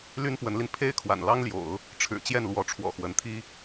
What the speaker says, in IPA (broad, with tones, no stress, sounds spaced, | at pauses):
l y˥ n p w ə˧˥ n l i˧ n pʰ e˥ ɪ̯ kʰ w a̰˨˩ n l ɑ˥ ŋ l j o̰˨˩˦ ʊ̯ | ʈ͡ʂʰ ɻ̩˨˩ t͡ɕ j ɛ˥˩ n l w ɔ˧˥ ʈ͡ʂʰ w ɔ̰˨˩ x w ə˧˥ n t̪ʰ i˥